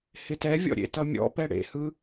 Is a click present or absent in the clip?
absent